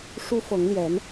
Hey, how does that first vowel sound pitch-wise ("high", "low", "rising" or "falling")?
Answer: high